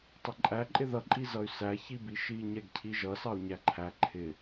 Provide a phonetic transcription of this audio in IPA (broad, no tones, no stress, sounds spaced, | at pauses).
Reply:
tˤ ɪ ǃʼ æ ǃʼ ɪ ð ʌ ǃʼ i z ʌ y̯ s æ ç i b i ʃ i ɲ ɛ ɡ cʰ i ʒ ʌ s ɑ u̯ ɲ æ ǃʰ æ ǃʰ ɪ